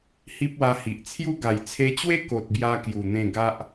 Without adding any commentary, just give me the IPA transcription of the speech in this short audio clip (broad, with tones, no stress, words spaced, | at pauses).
hi˦p̚wa˧hi˨ʔ t͡sʰju˦ɡa˨˩j t͡sʰe˧t͡ɕwe˦ ko˨t̚bja˧ kju˨˩n̪ẽ˥˧ ɡa˦ʔ